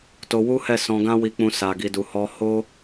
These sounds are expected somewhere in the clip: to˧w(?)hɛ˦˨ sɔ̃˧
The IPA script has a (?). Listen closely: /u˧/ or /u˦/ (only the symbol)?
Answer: u˦